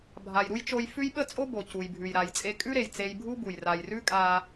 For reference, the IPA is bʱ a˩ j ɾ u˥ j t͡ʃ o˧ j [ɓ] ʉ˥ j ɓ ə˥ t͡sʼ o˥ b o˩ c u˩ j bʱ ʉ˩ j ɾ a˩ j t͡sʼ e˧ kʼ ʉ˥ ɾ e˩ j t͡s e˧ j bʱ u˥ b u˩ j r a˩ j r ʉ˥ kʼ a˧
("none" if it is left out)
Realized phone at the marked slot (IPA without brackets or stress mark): f